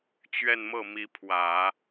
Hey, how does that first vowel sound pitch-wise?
falling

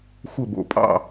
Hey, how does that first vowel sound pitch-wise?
falling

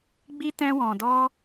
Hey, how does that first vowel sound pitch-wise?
high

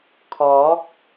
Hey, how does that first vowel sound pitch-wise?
rising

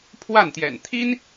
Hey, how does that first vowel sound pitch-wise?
falling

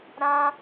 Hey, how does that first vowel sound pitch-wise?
high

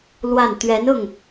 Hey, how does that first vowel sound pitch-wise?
falling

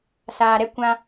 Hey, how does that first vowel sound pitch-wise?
low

